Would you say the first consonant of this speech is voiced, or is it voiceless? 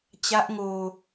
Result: voiceless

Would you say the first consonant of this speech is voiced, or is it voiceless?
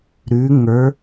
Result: voiced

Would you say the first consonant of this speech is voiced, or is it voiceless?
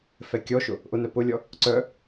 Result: voiceless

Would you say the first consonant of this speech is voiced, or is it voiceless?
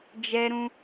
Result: voiced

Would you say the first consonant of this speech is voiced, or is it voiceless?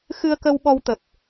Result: voiceless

